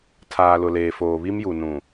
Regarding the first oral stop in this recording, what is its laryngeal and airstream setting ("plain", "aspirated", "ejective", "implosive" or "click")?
aspirated